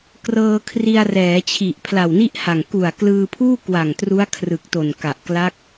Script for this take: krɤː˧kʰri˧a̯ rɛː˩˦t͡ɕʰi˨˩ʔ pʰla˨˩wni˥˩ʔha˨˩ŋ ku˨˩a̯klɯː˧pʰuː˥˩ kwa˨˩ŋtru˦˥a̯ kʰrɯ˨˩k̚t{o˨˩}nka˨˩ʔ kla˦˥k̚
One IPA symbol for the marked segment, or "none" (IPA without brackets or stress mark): o˨˩